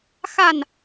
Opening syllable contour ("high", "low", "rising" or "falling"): falling